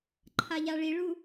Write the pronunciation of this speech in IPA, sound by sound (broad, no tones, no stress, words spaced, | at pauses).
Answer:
ǃʰaʎaɭiɭu